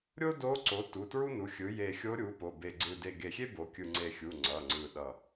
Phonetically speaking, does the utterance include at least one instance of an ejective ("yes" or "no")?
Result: no